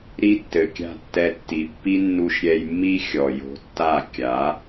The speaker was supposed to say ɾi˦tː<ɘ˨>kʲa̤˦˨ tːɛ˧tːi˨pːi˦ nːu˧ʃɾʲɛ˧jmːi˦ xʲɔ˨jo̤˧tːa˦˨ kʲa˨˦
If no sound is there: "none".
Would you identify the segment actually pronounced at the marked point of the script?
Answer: ɘ˨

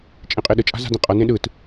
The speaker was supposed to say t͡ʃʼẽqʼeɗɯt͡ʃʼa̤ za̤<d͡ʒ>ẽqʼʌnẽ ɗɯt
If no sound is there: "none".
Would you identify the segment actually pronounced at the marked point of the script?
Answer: d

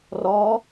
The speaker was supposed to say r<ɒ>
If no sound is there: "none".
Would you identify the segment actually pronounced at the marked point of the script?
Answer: ɒ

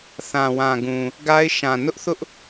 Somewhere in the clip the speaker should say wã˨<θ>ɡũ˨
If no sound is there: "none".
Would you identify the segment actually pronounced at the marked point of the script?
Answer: none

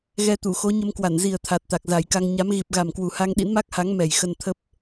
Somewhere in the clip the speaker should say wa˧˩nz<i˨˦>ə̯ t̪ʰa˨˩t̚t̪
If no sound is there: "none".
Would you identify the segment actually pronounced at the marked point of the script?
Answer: i˨˩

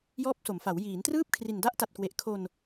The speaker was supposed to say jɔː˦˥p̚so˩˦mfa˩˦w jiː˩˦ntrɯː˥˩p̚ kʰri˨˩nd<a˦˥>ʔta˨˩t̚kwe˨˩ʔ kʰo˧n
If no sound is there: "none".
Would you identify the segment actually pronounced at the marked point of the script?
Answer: a˦˥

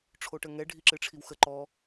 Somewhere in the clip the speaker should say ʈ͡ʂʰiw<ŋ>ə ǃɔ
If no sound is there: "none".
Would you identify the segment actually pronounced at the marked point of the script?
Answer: x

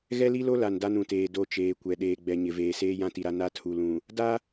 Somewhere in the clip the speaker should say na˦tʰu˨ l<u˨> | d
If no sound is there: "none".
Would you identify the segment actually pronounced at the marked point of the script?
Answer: ũ˨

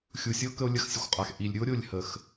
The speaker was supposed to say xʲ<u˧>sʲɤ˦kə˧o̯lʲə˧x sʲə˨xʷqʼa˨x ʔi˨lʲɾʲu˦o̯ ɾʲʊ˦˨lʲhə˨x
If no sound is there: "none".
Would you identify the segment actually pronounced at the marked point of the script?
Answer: u˨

